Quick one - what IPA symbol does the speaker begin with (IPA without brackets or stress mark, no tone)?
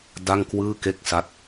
d